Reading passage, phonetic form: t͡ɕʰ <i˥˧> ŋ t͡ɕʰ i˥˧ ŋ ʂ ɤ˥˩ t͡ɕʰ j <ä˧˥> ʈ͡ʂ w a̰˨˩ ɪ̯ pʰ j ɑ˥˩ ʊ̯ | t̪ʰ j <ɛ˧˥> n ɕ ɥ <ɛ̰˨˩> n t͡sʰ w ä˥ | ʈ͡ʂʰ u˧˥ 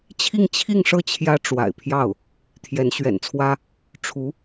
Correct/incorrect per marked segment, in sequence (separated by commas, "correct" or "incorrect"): correct, incorrect, correct, correct